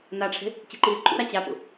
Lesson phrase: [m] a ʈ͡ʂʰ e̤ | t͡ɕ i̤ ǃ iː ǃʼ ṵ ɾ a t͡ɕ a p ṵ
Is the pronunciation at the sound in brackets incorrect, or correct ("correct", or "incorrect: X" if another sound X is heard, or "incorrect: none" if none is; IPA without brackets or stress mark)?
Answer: incorrect: n